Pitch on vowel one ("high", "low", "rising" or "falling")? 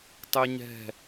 high